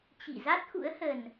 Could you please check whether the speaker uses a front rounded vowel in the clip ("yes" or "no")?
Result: no